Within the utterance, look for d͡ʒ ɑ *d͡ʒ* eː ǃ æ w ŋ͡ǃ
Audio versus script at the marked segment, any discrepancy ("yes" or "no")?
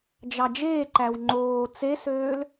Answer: no